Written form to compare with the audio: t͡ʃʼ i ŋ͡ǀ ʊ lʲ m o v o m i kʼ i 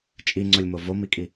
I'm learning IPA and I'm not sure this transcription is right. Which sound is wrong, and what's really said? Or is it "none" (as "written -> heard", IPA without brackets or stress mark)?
none